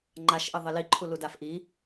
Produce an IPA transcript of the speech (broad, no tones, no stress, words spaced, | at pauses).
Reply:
ŋ͡ǃaʃʔɘ ðˤɘliǃʰulu dafʔi